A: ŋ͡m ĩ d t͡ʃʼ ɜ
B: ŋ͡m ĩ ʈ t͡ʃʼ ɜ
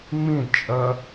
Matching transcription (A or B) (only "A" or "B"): A